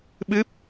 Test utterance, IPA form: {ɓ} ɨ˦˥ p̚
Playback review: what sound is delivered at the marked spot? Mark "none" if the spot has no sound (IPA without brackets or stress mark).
ɓ